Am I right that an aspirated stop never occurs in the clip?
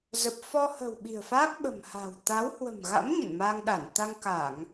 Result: yes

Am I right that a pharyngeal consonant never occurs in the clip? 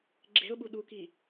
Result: yes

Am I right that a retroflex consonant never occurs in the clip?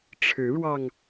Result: no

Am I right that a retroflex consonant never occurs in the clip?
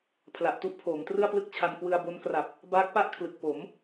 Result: yes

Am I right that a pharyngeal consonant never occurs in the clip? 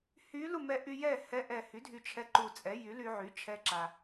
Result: no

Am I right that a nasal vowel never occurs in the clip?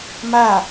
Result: yes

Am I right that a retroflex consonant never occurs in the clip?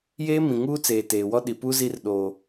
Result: yes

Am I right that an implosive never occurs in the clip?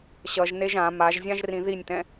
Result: yes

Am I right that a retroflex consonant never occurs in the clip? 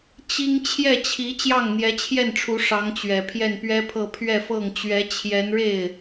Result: no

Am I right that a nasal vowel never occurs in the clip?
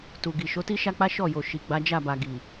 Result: yes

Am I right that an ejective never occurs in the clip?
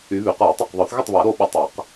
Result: yes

